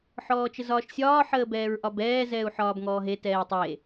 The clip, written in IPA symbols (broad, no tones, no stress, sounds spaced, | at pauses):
ħ ɔː t͡ʃ ə z ɒː ʃ sʲ ɒː ħ əː b ɛː ɹ ʔ ɒ b ɛː z ɛː u̯ ħ ɒː b ŋ ɔː ɦ e t ɛː tˤ e